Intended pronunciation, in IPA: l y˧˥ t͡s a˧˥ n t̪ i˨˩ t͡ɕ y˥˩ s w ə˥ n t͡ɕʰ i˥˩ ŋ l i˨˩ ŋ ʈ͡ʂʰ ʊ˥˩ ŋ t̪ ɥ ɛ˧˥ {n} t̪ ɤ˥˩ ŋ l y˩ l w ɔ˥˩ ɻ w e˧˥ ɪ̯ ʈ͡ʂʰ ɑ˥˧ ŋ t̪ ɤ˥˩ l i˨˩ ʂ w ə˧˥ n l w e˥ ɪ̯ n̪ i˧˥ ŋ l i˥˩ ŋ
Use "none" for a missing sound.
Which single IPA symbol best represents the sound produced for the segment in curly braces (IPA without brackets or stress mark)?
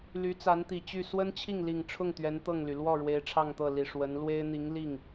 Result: n